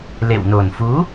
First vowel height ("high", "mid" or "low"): mid